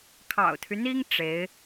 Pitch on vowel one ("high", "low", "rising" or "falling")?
low